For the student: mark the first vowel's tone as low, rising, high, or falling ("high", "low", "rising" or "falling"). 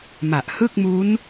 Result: low